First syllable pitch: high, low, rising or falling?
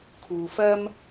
low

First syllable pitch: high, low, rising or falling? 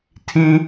high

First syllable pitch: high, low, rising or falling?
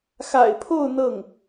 low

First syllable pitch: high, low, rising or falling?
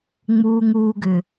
low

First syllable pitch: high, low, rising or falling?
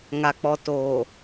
low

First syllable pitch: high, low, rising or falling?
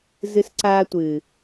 high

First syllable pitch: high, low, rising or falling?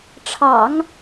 low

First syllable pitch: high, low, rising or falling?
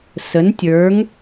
rising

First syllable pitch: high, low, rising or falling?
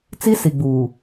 high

